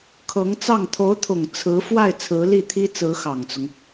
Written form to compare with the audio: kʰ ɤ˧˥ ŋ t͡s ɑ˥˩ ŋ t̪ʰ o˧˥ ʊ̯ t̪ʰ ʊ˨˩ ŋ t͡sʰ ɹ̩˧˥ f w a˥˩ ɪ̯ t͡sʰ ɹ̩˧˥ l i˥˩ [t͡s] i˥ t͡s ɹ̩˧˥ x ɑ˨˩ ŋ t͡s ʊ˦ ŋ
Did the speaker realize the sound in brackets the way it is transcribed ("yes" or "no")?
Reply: no